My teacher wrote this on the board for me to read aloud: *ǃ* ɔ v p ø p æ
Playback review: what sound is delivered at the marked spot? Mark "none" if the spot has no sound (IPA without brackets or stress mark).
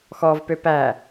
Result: x